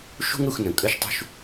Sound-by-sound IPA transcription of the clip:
ʃ ṳ˦ ŋ ɾ u˨ x n ə̃˩ kʼ ə˦ ʃ tˤ ṳ˦ ʃ

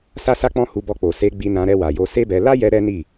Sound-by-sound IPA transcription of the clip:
s a˦ s a˦ k͡p ɔ̃˦ h u˧ b ɔ˧ k͡p o˨ s e˧ ɡ͡b i˧ n ã˧ ɾ ɛ˧ w a˨ j o˧ s e˦ b ɛ˧ l a˦ j ɛ˧ ɾ ɛ˦ n i˦˨

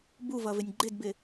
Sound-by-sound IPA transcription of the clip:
b u v ʌ v ɪ nʲ ɡ͡ǃ ɪ d b ɪ

